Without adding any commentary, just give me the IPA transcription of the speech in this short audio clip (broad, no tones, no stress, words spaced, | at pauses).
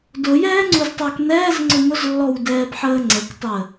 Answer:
dʊjɛːŋ͡ǀuztˤə˞k nɛːzŋ͡ǀʊ mʊzlːɔwdɛːbħəː ŋ͡ǀəktˤəː